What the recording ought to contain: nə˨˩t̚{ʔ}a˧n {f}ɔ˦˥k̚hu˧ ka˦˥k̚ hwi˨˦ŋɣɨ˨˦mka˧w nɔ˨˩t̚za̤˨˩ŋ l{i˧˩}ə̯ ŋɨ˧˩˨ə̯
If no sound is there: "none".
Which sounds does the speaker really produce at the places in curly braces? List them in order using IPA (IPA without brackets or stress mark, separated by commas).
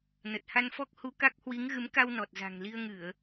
h, f, i˧